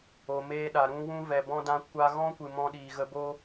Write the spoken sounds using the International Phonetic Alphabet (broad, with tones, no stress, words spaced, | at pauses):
o˨meː˧ɗa˨ ɾũ˧ wũ˧vɛ˨ bɔ̃˧dã˧ kʷa˧ɣɔ̃˦kʷɨ˨ mɔ̃˧ɗiː˨ɣə˧bo˦